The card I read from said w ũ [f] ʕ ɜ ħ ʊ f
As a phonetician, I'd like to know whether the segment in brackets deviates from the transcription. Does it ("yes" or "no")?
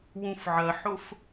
no